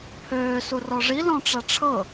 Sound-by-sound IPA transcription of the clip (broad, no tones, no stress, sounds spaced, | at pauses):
pʰ øː s u r ɔ ʐ i l ɔ̃ ʈ͡ʂ a ʈ͡ʂʰ ɤ